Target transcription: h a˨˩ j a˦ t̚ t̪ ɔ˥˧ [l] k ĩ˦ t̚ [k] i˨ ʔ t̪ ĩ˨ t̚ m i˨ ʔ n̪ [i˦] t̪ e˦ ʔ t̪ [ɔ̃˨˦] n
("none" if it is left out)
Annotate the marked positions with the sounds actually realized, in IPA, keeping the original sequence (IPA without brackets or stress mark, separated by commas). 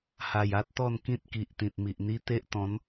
n, k, i˦, ɔ̃˨˦